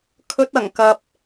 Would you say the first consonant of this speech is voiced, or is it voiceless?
voiceless